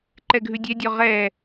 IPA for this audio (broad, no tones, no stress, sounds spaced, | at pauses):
ǃ ɛ ɡʱ ʉ dʲ ɛ dʲ ɔ ʁ ɛ